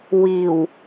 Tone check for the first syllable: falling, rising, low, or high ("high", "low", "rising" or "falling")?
low